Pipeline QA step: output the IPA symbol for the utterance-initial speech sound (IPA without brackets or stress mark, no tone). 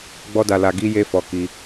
ɡ͡b